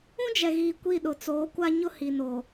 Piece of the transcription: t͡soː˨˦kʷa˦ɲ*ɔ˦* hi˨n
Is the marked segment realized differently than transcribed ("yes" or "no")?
yes